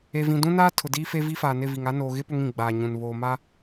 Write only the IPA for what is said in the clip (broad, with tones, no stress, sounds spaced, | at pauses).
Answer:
e˨ v ĩ˨ d ũ˦ n aː˦ tʰ ʊ˨ d iː˦ f e˦ v i˦ f aː˨ n ɪ˦˨ v i˨ ŋ a˦ n oː˨ ɣ ɪ˦ p ʊ˦ ŋ ĩ˨ ɡ͡b aː˨ ɲ ũ˨ n β oː˨ m a˦